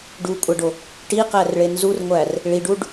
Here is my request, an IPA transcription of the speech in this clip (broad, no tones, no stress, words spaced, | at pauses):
ɖukʷʼæɖo | ʈiqærɭe nzurŋʷær | ɭiɖuɖ